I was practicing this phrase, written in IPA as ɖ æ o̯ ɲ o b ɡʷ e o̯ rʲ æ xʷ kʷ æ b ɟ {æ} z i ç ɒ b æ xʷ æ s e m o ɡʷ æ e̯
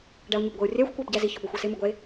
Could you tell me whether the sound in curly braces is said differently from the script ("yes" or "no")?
no